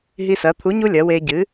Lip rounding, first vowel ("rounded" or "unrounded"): unrounded